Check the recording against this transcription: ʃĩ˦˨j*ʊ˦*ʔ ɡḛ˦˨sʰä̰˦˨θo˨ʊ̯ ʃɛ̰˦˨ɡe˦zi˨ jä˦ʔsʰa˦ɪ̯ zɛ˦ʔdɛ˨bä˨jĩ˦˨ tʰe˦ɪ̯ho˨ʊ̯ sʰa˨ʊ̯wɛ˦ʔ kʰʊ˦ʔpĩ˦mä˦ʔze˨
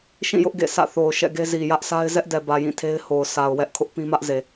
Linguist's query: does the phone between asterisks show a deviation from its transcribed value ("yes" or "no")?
no